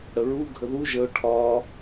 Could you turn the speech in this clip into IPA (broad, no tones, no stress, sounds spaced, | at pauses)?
ɽ ə ɹ u ɡʱ ə ð u ʒ ə ʊ̯ ʈʰ ɒ